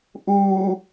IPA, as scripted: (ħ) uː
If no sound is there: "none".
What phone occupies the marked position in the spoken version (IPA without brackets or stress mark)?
ʔ